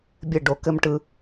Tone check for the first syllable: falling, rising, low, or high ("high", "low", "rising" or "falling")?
falling